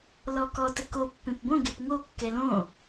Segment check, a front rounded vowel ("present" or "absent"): absent